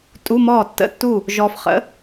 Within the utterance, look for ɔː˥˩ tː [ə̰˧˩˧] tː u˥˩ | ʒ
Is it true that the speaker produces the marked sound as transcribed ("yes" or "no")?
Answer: no